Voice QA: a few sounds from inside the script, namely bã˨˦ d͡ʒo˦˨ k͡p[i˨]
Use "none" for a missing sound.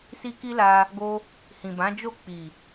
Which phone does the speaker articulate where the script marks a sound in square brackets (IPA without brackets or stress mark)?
i˨